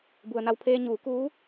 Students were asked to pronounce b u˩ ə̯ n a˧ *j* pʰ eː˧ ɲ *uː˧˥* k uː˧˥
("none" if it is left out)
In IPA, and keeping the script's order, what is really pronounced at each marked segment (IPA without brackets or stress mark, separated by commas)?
w, uː˩˧